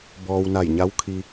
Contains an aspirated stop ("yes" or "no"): yes